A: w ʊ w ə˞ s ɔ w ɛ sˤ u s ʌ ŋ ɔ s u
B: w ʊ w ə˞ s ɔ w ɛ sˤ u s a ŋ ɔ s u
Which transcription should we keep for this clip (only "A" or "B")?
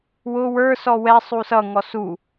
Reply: A